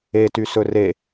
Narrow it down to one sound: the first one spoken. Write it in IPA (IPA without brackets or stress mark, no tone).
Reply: e